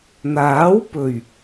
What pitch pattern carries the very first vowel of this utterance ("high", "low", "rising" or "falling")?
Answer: rising